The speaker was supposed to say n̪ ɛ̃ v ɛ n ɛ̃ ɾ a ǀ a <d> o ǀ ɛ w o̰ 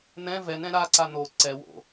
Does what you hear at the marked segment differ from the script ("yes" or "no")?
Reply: yes